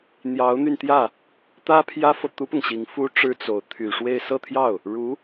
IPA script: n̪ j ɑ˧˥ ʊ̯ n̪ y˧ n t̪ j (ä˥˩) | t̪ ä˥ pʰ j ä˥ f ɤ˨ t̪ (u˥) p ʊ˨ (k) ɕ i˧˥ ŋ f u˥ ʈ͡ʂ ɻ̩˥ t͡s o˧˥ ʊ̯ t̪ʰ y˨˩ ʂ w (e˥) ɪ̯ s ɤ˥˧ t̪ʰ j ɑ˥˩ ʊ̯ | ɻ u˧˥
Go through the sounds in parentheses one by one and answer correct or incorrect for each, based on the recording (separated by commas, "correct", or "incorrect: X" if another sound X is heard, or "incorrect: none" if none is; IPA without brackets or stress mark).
correct, correct, incorrect: ŋ, incorrect: e˥˧